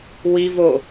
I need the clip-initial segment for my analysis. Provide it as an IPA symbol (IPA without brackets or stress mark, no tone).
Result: w